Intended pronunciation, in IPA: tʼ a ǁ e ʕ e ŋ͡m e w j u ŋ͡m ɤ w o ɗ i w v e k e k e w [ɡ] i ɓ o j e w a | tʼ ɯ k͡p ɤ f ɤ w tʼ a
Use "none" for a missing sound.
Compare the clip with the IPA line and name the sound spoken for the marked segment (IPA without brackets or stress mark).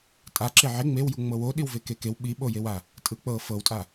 ɓ